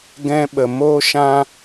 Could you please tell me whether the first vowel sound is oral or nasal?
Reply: nasal